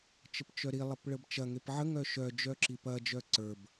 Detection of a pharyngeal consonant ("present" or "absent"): present